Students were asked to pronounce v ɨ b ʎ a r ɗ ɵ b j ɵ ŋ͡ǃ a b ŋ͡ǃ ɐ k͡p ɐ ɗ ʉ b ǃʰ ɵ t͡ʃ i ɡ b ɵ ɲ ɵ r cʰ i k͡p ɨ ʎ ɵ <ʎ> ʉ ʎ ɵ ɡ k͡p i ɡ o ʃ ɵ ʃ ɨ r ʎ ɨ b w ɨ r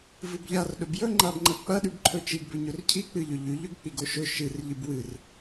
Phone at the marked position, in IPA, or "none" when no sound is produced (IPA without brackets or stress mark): ʎ